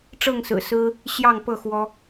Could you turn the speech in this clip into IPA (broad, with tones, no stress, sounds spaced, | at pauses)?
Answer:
ʈ͡ʂ ɤ˥˨ ŋ s ɹ̩˨˩ s ɹ̩˦ | ɕ j ɑ˥˨ ŋ p ɤ˥˨ x w ɔ˦